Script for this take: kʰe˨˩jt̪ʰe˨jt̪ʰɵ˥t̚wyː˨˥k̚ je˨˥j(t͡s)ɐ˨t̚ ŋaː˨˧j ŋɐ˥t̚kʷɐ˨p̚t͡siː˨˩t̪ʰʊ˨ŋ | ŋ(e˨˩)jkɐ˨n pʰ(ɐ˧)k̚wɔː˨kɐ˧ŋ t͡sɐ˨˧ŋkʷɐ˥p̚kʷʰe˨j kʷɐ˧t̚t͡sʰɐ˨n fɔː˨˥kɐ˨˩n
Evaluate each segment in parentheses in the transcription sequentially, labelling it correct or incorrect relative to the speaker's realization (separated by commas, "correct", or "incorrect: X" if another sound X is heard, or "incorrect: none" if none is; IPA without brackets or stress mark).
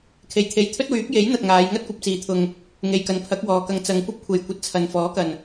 incorrect: n̪, incorrect: e˨, incorrect: ɐ˨˥